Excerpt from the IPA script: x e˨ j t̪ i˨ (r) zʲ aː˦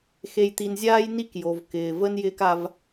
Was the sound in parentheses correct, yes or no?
no